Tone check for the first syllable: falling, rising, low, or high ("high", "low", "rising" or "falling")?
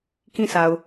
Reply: falling